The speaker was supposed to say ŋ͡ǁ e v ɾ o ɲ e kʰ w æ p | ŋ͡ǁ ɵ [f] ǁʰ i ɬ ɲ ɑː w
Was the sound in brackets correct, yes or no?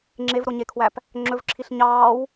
no